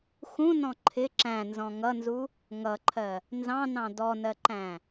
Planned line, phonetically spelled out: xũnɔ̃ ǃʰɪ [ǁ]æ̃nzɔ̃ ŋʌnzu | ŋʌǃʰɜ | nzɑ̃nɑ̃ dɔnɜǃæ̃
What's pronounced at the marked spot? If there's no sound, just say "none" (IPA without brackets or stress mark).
ǁ